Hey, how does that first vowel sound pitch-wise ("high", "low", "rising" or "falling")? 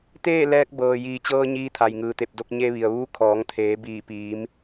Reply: falling